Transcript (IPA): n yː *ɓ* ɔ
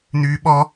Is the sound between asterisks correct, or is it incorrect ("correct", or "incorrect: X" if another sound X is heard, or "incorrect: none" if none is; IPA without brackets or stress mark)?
correct